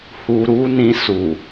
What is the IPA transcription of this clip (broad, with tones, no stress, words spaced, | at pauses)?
hu˧ɾu˦nĩ˧ su˨